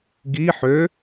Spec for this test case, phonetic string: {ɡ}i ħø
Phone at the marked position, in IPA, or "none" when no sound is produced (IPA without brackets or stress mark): ɡ